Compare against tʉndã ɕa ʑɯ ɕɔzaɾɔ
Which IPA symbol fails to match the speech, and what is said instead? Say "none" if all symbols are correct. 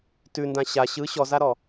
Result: ʑ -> ɕ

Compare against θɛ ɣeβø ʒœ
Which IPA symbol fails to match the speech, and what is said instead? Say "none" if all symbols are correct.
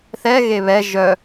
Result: ø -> ɛ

